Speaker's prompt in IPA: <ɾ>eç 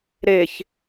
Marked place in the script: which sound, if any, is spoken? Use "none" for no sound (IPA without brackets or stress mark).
ɾ